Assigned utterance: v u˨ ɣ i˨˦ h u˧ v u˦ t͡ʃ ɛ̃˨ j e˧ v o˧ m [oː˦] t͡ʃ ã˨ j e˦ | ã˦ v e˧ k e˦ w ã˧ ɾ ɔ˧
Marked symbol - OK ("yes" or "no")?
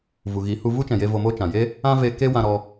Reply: yes